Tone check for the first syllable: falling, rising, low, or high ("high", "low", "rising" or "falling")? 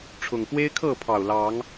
low